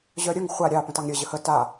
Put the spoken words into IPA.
ʑœɾʲəŋ χʷa ɾʲɑ pə̃tɑŋɾʲə ʑəhə ta

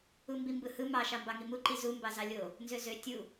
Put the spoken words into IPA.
umbimbɯhɯ mɑʃɑ mbɑŋimuǃi zu mbɑzɑlʲo | nzøzø tʲu

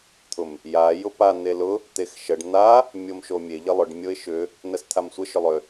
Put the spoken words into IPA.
t̪ʰʊm | ja jʊpa n̪elʊ | t̪exʃəɖ n̪a | mʲomʃomʲe ʎəlˠʏɖ mʲoɪ̯ʃʏ | nəst̪ʰamsʷə ʃʏlˠʏ

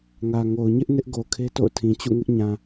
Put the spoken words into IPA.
ŋä˨ ŋo˨ʊ̯ɲɪ˦ʔ nɪ˦ʔɡo˨kʰe˦ to̰˦˨ʊ̯tʰĩ˨t͡ɕṵ˦˨ŋɪ˦ʔ ɲã˨

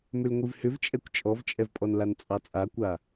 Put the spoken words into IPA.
mʏlŋʷivhʏvt͡ʃʼɛkʷ t͡ʃʼɔvt͡ʃʼɛvpʼɔnlan t͡sʼɑt͡sʼakʷa

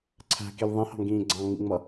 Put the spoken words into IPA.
ǀʰæ̤kil ðˤĩhɑ̤ŋɡĩː ɡ͡ǀɑ̃ŋ͡mḭŋ͡mʌ

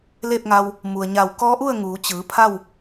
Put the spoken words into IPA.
leː˥˨p̚ŋa˧w | mu˩ə̯ɲa˧˩w kɔː˧˥ʔu˥˨ə̯ ŋuː˩˧t͡ɕɯː˩˧ pʰa˥˨w

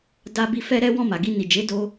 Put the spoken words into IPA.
da˧ bi˧ fɛ˦ɾɛ˦ wɔ̃˦˨ma˨ɡi˧ ni˨d͡ʒe˨˦ do˧

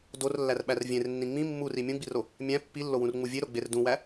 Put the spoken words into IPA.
dorlːærɓær vʲẽrnːĩ ŋ͡mĩ mːuri mʲũɡ͡biro | mʲæ̃ pːilːowũrŋ͡mu vʲeɾoɡ͡ber dũwæ

